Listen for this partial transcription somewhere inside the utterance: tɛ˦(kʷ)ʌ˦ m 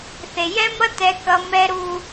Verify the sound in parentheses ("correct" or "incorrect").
incorrect